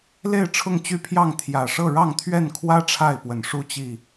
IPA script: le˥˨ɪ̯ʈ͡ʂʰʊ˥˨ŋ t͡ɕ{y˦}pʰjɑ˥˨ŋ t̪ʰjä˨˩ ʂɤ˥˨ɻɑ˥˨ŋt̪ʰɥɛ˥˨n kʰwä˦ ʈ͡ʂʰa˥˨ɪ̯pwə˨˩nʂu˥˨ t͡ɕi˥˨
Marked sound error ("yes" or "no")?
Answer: no